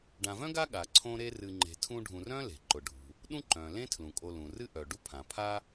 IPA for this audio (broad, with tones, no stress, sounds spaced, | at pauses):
ɖ ã˨ v œ̃˥ ɡ a˦ ɠ a˩ ǀʰ õ˦ ɾ e˦ r ɨ˨ ŋ͡ǃ e̤˨ tʰ ũ˦ ɖʱ ũ˨ r œ̃˥ l e̤˩ ǃ ʊ˩ ɖʱ ṳ˩ | ɗ ũ˥ ǃ œ̃˩ l ẽ˥ tʰ l ũ˩ kʼ o˨ l ũ˩ r ɨ˦ ʔ œ˩ ɖ u˦ pʰ ã˩ pʰ a˦